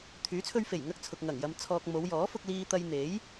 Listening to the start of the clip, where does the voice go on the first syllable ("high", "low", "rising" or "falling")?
rising